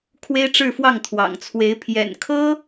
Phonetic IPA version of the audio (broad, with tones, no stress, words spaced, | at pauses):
kʰwe˥ɪ̯ʈ͡ʂɻ̩˥˧fwɑ˥˩ŋt̪ʰwɑ̰˨˩ŋ t͡sʰwe˧˥ɪ̯ pʰjɛ̰˨˩nkʰɤ˥